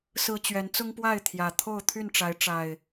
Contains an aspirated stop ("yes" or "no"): yes